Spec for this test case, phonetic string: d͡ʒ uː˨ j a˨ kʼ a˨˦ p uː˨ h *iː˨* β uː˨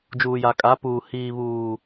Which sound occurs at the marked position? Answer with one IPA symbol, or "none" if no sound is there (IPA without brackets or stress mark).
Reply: iː˨